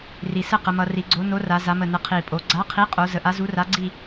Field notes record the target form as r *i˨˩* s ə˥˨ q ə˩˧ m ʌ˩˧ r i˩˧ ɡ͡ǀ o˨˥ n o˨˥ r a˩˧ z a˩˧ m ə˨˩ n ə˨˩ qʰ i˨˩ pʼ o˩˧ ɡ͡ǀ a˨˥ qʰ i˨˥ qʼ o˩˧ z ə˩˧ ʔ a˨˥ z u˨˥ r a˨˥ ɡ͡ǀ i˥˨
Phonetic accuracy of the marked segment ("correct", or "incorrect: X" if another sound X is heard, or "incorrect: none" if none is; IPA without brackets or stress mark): correct